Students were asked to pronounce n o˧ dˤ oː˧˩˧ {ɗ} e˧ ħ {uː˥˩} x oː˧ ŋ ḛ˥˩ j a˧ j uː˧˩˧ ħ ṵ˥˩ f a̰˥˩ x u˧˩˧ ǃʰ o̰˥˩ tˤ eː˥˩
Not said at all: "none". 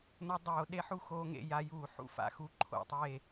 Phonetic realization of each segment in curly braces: ɗ, u˥˩

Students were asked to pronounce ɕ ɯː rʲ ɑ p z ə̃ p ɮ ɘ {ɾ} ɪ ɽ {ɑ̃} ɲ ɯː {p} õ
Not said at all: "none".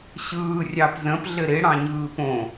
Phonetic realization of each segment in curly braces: ɾ, ɑ̃, p

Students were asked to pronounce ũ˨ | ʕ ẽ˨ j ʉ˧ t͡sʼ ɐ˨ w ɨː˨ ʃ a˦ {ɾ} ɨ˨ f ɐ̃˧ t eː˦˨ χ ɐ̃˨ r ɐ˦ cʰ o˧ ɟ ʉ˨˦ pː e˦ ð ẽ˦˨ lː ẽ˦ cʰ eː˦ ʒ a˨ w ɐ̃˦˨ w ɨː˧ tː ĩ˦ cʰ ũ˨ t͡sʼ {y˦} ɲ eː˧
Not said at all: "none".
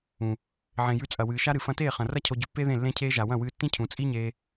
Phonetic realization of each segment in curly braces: ɾ, i˦

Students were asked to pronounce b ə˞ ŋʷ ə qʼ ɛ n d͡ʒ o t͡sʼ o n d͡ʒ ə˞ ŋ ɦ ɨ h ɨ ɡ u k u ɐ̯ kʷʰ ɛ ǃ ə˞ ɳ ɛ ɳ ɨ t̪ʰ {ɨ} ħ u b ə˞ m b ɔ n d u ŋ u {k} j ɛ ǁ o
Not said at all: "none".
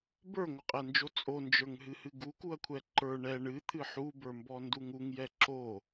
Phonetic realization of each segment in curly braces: ɨ, ŋ

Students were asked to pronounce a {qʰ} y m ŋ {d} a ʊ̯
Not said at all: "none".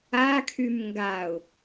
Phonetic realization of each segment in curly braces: kʰ, ɡ

